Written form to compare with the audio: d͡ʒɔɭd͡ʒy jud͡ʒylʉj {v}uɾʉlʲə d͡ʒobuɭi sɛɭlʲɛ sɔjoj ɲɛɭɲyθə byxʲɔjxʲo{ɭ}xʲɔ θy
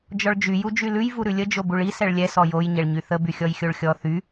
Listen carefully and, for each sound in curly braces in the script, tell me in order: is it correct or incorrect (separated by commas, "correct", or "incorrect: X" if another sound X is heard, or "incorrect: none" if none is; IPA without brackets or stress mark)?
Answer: correct, correct